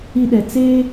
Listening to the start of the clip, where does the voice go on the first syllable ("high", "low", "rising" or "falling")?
high